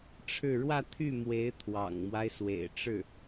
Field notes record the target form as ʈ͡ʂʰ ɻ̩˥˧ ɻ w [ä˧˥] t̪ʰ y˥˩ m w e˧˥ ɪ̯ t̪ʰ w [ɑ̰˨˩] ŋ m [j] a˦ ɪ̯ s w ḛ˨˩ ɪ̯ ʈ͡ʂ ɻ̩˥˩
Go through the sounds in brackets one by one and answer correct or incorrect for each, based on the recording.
incorrect: ä˥˧, correct, incorrect: w

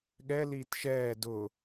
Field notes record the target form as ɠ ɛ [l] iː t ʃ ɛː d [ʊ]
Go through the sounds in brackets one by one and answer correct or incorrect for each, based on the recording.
correct, correct

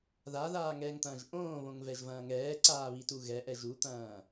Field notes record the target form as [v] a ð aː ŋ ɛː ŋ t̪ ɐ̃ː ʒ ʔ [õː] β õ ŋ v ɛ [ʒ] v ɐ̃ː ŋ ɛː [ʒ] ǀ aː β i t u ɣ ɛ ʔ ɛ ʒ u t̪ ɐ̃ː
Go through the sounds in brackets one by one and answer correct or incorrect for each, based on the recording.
incorrect: ð, correct, correct, incorrect: none

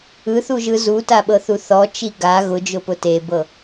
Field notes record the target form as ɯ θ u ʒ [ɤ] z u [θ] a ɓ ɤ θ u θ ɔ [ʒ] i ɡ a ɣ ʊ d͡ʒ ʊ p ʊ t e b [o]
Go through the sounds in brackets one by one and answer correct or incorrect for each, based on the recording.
incorrect: ɯ, incorrect: t, incorrect: t͡ʃ, incorrect: ɤ

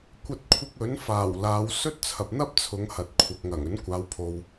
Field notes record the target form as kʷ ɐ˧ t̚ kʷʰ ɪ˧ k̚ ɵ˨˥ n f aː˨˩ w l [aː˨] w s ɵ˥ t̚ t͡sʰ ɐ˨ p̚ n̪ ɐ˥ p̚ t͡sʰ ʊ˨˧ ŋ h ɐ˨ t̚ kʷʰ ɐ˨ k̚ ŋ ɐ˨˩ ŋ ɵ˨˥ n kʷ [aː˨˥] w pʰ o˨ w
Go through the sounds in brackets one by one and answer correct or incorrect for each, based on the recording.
incorrect: aː˨˧, incorrect: aː˨˧

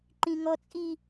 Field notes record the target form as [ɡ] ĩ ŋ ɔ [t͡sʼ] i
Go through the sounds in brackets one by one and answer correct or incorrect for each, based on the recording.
incorrect: ǃ, correct

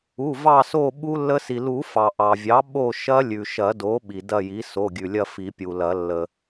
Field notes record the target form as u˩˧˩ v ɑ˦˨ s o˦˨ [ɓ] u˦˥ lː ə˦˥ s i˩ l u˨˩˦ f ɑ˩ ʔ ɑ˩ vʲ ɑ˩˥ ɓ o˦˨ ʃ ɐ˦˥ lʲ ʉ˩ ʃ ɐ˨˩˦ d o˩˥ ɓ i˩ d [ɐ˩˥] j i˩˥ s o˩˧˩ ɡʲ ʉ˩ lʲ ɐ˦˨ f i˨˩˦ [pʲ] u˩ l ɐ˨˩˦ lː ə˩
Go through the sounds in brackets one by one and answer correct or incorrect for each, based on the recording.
correct, incorrect: ɐ˦˨, correct

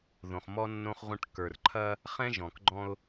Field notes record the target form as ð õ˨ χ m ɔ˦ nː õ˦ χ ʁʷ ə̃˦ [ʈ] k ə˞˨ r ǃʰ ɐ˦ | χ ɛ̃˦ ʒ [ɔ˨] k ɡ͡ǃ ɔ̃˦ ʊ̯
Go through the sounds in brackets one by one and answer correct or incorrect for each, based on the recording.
correct, incorrect: ɔ̃˨

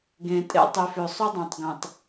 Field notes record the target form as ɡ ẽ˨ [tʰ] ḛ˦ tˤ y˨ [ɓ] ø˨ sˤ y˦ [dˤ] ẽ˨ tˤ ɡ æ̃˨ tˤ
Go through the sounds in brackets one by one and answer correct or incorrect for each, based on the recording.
incorrect: tʼ, incorrect: f, correct

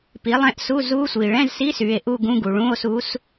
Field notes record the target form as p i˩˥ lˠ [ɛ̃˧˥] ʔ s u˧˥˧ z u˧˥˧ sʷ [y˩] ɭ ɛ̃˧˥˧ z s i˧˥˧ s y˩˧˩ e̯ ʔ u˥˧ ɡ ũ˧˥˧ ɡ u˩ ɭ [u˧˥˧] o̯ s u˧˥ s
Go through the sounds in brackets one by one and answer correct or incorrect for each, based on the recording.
correct, incorrect: i˩, incorrect: ũ˧˥˧

